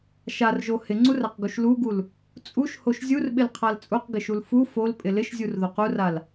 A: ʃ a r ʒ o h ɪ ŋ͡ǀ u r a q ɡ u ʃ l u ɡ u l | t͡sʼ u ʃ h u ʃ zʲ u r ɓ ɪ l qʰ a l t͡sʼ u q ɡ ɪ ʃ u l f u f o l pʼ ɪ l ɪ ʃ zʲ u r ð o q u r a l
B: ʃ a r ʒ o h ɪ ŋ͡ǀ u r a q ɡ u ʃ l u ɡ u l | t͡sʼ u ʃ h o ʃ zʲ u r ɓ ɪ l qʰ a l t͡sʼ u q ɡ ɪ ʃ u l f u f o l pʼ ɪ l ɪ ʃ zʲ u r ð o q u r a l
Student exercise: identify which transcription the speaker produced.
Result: B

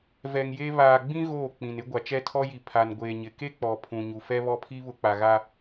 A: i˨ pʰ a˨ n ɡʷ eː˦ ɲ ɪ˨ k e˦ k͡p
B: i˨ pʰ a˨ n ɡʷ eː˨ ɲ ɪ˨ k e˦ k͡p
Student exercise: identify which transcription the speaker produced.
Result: B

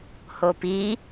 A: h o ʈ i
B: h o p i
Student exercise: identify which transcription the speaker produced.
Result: B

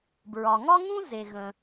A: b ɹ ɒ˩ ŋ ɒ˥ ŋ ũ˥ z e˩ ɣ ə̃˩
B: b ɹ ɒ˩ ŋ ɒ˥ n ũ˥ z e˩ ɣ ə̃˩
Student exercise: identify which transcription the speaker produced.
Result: A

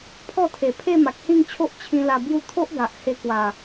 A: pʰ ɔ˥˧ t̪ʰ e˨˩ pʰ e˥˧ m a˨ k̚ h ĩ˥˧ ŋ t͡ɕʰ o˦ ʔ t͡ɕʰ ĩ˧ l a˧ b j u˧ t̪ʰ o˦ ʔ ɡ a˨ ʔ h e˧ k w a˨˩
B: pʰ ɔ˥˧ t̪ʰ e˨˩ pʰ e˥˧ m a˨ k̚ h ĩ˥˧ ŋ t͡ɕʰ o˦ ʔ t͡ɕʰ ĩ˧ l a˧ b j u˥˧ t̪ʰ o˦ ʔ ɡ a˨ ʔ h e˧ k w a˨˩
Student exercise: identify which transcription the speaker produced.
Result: B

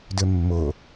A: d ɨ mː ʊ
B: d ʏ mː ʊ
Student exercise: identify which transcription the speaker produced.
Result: B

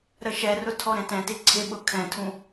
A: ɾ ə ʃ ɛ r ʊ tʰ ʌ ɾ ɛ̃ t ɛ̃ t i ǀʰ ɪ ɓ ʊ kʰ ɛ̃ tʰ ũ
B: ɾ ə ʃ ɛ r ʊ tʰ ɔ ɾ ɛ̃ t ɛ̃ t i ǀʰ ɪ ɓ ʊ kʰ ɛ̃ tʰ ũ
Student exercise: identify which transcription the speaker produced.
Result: B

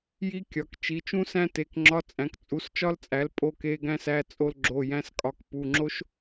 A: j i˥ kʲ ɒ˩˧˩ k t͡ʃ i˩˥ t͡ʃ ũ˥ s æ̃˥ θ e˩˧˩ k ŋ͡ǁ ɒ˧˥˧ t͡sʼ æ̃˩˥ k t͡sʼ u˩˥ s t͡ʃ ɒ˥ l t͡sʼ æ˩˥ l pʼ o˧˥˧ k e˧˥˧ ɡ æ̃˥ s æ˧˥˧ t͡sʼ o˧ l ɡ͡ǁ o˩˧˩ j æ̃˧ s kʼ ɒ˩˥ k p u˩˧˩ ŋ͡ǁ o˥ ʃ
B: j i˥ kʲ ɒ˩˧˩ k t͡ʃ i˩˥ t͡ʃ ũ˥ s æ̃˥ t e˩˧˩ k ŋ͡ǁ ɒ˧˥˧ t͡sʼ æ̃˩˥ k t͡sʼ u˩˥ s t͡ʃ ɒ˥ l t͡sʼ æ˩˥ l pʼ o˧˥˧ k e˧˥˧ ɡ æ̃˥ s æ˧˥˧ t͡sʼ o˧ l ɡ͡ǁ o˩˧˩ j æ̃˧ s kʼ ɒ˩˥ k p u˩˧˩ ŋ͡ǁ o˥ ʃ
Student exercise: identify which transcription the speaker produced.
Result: B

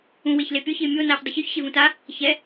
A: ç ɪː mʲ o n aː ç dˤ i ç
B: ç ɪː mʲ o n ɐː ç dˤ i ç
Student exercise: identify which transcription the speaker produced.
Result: A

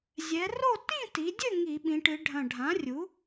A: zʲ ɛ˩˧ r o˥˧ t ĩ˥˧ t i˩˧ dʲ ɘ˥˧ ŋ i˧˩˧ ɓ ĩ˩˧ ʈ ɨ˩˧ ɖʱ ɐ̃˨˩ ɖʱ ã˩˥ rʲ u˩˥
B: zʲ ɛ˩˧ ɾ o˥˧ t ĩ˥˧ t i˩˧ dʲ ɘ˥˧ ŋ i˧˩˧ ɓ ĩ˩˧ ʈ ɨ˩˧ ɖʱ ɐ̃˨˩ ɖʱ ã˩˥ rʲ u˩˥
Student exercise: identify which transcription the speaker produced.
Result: A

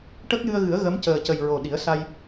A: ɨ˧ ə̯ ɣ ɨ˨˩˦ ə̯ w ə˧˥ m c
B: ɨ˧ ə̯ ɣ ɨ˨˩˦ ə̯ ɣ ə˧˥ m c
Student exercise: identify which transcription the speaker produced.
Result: B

